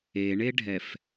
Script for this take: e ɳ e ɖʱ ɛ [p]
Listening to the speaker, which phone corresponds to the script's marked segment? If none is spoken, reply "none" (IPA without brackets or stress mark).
f